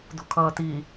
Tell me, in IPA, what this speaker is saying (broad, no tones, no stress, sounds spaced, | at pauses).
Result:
d ṳ kʰ ʌː t i